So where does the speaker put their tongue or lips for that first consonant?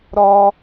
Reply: tongue tip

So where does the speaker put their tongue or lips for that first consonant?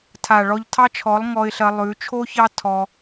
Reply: tongue tip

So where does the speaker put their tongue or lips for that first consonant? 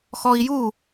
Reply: velum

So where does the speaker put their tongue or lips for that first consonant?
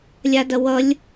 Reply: tongue tip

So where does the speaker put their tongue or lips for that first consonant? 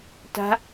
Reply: tongue tip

